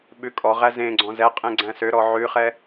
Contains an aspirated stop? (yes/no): no